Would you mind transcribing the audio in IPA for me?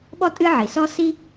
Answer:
ɓ ɔ˥ tʼ ɨ˥ ʕ i˩ s ɔ˥ s i˥

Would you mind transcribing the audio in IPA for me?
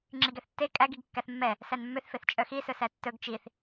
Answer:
ŋ͡ǁ i ɡ ɛ θ tː e kʼ æ ɡ i ɡ kː æ θ mː ɛ | s æ n mː ø θ f e θ t͡ʃʼ œ x i s ɵ s æ tː ɵ ɡ t͡ʃ i θ

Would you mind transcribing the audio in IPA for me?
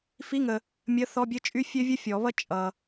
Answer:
f i˧˥˧ ŋ ə˨ | mʲ ə˧˥˧ θ ɔ˧˥˧ bʲ ɘ˥ t͡ʃʼ y˥ fʲ ø˥ vʲ ɘ˥ fʲ ɔ˨˩˦ β ʌ˥ t͡ʃʼ ʌ˨

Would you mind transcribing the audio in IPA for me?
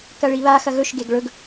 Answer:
k ɐ ɭ i β a x ɐ ɣ ɵ ʃ ɡ e ɡ ɭ ɵ ɡ

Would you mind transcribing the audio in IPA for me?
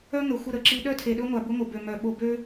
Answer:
œ˦ ŋ ə˨ xʷ ə˦˨ ɾ ə˨ ǁ i˦ ɗ œ˦ tʰ e˨ ɗ ɵ˦ ŋʷ a˨ b ʊ˦ ŋʷ ə˨ b ø˨ m œ˨ ɓ o˨ b ø˦

